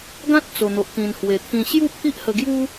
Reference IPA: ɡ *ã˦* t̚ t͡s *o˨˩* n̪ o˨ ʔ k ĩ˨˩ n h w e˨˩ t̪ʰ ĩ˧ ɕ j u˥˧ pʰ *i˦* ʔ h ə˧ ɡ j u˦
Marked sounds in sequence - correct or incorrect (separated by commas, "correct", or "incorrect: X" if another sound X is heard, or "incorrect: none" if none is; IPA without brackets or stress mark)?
correct, correct, correct